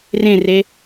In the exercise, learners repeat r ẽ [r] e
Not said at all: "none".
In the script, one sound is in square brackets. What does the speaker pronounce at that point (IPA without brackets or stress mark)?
r